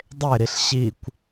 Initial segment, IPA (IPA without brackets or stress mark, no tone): dˤ